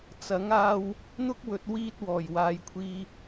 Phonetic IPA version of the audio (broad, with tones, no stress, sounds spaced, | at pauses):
t͡s ɐ˨˥ ŋ aː˧ w | n̪ ʊ˥ k̚ w ɵ˨ t̚ w iː˥ t̚ w ɔː˨˩ j w aː˨ j kʷʰ iː˧